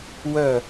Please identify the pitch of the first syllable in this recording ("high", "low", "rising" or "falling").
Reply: falling